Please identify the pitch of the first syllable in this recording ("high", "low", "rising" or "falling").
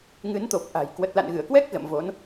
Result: rising